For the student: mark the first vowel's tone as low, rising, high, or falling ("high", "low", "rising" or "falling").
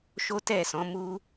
high